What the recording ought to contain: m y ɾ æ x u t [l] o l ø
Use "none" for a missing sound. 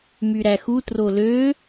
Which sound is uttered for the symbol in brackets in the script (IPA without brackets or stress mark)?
r